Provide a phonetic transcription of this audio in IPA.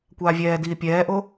kʷ aː vʲ ɛː d iː pʲ ɛː ʔ o

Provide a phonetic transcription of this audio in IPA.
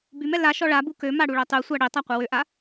b y m ɛ l a ʃ ɔ ɭ a b u k ø m a ɽ u ɭ œ tˤ y sʷ a ɽ i tˤ a qʷ ɛ w ø ʔ a

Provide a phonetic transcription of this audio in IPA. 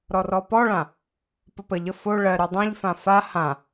ɾ ɔ r ɔ p ɔ ɭ ã | p ɘ p ə ʎ ə f o ɭ ɜ ɾ ʉ dˤ ã ʎ f ã f a h ã

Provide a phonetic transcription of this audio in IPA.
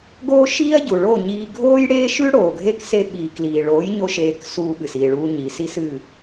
ɡ oː˦ ʃ iː˦ ɐ̯ ɟ u˨ ɭ o˦˨ ɲ iː˧ ɡʱ oː˦ j ɽ eː˦ ʃ ʉ˦ ɽ oː˨ ɡʱ e˦ k s e˧ ɓ iː˨ k l iː˨ ɭ oː˨˦ j ɲ o˦ ʃ eː˧ k s uː˧ ɓ ɨ˨ s iː˨ ɭ uː˧ ɲ i˨ s i˦ s ɨ˦˨

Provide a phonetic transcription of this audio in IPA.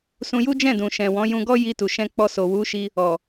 s ũ˧ j u˦ d͡ʒ ɛ̃˦˨ d ũ˨ ʃ ɛ̃˨ w ɔ̃˨˦ j ũ˧ ɡ ɔ˦ j i˧ t u˨ ʃ ɛ̃˧ k͡p ɔ˧ s o˨ w u˨˦ ʃ i˧ | ɔ˨

